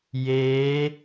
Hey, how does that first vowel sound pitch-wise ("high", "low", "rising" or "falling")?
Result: rising